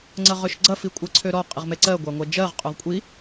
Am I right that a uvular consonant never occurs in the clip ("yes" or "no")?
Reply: no